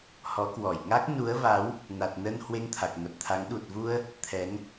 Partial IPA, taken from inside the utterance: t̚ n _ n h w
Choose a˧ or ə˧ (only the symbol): ə˧